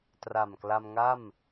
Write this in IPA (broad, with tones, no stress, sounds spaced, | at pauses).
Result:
t r a˨˩ m k l a˧ m ŋ a˥˩ m